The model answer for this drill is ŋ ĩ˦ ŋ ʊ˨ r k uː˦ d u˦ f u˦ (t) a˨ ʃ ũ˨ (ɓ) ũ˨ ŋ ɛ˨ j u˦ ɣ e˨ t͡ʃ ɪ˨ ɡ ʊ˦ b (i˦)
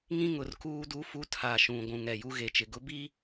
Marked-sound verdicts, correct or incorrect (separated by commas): incorrect, incorrect, correct